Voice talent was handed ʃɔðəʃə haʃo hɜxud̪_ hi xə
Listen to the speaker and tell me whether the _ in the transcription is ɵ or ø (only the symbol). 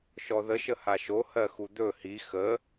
ɵ